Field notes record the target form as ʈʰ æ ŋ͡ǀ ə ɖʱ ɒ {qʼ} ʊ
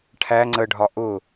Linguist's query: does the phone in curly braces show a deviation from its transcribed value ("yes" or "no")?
yes